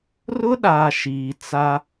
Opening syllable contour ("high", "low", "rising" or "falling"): high